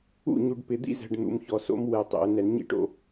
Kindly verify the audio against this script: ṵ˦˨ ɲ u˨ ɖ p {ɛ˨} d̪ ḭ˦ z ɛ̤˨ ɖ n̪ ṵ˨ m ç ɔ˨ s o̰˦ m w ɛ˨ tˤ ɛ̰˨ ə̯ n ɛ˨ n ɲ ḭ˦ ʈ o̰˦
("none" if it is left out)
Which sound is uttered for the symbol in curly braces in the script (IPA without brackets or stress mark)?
ɪ˨